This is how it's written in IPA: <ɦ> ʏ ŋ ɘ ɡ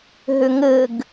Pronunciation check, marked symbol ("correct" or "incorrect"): correct